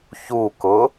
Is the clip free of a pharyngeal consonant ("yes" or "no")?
yes